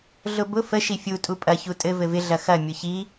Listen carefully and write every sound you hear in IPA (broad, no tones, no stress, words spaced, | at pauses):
ɮʊbʊ fə ʃifʲu tʼupʼɐ çutʼɘ vɘvɪ ɮɐxɐ mʲʊçi